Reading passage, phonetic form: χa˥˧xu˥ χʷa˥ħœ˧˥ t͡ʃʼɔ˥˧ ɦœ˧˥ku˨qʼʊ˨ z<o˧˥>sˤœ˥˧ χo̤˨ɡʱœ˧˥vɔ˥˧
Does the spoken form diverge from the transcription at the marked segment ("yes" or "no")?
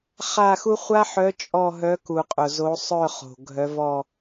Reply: no